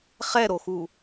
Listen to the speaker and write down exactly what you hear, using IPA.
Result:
χ ɛ ɾ o x u

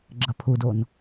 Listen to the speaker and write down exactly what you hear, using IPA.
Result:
ɡ͡ǁ ɐ pʰ u d o n

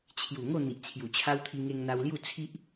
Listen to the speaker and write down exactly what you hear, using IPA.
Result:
t͡ɕʰ j u˨˩ ŋ o˥˧ n̪ i˨ ʔ t͡sʰ j u˨˩ t͡ɕʰ a˦ w t̪ʰ i˧ ŋ e˧ ŋ n̪ a˧ w l j u˥˧ t͡sʰ i˦ ʔ

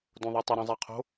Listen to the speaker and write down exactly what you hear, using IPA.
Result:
d õ ðˤ o tˤ ə ɾ õ zˤ ɛ qʰ o̤

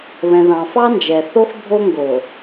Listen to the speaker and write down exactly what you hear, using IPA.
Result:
β ɛ̃˨ ð ɑ̃˨ f ɑ˦ n d͡ʒ ɛ˨ θ o˦ x bʱ o˦ ŋ ɡ o˨

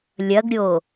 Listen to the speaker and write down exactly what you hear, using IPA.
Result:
lʲ ɐ ɡ ɾʲ o

